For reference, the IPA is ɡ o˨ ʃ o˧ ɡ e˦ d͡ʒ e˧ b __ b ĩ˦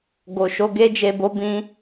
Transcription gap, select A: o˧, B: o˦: B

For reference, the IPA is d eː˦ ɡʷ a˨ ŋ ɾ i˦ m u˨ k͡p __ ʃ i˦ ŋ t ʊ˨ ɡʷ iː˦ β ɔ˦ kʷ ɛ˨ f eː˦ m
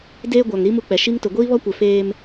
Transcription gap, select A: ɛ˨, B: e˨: A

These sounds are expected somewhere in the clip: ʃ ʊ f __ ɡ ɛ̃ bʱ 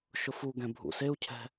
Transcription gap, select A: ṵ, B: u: B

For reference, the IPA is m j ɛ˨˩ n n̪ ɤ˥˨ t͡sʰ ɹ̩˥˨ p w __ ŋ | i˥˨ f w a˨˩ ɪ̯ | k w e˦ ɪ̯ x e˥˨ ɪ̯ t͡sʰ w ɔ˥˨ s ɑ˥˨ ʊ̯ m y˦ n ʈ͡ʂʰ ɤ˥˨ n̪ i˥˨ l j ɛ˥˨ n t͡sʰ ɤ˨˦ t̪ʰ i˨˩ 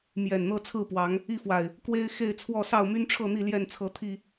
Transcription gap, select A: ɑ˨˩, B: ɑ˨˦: B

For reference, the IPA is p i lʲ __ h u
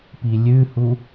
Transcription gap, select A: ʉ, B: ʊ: A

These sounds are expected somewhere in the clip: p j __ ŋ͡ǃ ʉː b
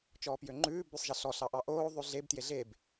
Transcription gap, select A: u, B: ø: B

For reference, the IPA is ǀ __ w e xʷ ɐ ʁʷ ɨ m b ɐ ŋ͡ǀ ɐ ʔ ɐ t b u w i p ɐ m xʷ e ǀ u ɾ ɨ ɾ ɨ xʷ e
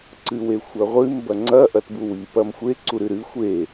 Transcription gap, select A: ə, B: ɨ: B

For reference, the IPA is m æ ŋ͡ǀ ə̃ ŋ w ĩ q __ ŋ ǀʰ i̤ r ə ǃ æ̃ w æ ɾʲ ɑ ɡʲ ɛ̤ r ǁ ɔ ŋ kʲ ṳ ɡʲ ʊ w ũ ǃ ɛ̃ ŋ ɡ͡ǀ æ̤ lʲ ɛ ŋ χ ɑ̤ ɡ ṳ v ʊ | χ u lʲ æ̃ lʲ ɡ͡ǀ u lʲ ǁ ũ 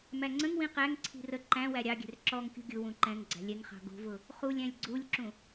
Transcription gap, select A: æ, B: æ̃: A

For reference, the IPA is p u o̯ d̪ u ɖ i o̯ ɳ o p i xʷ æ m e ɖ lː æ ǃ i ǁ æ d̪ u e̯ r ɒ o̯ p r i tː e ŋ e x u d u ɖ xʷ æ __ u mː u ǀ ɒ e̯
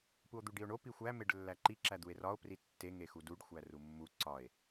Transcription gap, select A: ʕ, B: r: B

